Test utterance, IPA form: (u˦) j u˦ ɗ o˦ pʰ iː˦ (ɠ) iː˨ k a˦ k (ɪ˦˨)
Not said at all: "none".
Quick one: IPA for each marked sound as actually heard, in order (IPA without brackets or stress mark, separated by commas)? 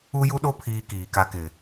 u˦, k, ɪ˨